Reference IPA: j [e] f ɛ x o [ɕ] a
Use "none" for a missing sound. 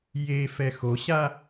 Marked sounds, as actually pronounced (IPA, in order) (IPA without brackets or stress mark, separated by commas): e, ɕ